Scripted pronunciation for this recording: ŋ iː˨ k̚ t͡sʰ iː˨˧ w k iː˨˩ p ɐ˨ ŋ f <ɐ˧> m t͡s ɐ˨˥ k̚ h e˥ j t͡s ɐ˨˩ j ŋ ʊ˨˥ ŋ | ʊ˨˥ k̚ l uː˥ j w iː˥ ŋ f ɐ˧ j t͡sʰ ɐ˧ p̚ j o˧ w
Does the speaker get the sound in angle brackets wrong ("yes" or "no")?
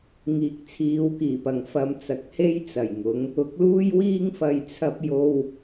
no